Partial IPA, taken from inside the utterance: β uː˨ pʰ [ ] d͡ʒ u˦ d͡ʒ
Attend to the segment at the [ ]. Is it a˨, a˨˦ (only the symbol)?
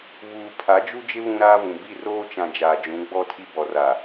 a˨˦